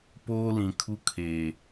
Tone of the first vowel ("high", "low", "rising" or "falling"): high